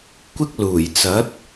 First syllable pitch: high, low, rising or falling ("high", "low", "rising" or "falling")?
high